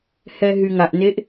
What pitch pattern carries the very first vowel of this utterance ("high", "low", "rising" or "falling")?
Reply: low